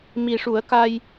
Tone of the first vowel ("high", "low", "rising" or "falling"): low